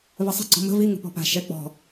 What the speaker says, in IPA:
v ɘ sˤ ə̤ ɡ͡ǀ ɔ̤ m ə̤ v i ŋ ə̤ p ɔ̤ p a̤ ʃ ɛ k͡p ɔ̤

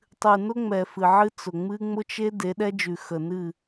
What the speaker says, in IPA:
tˤ ɨ˨ n ʊ˦ ŋ͡m ɛ˨ f ɨ˨ ʕ ɨ˦ t͡s ʊ˨ ŋ͡m ɨ˦ ŋ͡m ʊ˦ t͡ʃ e˦ d e˨˦ ɗ ɛ˦ d͡ʒ ʉ˨ x ə˨ n ɨ˦˨

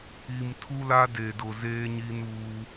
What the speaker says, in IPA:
i˨ m tʰ u˦ l a˦ d e˨ d ʊ˨ z eː˦ ɲ i˦ n uː˦

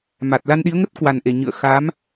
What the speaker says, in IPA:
m a˨˩ t̚ l a˧ n ɗ i˨˦ ə̯ ŋ ə˦˥ t̚ k w a˨˩ n ʔ e˧˩ ɲ ɨ̰˧˨ ə̯ x a˨˦ m

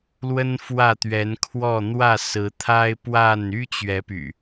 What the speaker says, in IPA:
l w ə˦ n f w ä˥˨ t̪ ɥ ɛ˨˦ n kʰ w ɔ˥˨ n̪ w ä˥˨ s ɹ̩˨˦ t̪ʰ a˦ ɪ̯ p w a˥˨ n y˦ t͡ɕ ɥ ɛ˨˦ p y̰˨˩

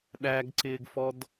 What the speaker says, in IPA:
ɗ æ ɡ ǀ ɪː ɡ f ɔ d

